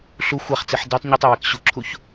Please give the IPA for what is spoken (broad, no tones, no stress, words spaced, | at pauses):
ɬu xʷaχt͡siħ detˤ ɲɯtˤe wɛkɕuǁʰuç